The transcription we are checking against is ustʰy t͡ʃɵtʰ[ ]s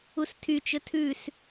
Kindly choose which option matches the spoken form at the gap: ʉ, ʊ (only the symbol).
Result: ʉ